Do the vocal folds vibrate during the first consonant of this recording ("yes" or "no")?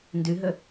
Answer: yes